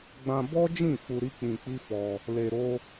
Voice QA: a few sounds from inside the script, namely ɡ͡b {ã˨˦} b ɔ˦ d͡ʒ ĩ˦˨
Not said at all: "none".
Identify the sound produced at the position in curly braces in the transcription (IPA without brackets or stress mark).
ã˧